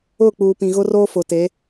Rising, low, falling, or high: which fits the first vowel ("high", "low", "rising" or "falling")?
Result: falling